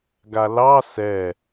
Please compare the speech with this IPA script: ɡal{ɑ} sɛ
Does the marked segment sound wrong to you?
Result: no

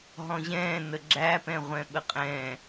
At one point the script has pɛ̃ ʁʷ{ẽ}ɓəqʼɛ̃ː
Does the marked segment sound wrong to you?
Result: yes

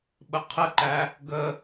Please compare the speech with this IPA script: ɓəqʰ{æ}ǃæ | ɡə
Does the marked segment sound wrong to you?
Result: yes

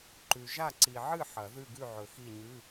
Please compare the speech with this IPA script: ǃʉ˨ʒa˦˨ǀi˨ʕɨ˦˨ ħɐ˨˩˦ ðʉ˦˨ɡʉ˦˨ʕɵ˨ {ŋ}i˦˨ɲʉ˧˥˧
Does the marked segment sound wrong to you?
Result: yes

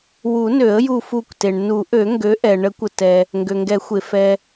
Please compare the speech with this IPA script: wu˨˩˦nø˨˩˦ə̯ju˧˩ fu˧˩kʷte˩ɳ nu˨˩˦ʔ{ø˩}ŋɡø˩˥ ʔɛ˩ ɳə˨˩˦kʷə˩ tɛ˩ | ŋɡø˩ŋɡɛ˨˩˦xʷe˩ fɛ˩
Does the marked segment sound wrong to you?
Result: yes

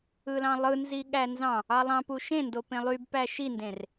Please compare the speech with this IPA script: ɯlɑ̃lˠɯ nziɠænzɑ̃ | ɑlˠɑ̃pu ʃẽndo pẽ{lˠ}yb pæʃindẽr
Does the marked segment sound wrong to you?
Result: no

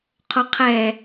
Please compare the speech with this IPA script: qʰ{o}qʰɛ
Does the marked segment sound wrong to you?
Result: no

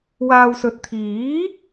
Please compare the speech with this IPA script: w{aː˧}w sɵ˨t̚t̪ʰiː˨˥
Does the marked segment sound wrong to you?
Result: no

